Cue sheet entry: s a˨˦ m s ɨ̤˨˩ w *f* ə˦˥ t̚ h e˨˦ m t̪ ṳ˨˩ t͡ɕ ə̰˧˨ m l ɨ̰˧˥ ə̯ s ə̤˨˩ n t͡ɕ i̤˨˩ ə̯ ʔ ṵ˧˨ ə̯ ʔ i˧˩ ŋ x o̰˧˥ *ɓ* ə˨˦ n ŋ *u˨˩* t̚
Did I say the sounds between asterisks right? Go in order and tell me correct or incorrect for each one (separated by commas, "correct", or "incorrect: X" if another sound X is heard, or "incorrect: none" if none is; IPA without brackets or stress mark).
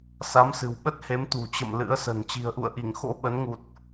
incorrect: ɓ, correct, correct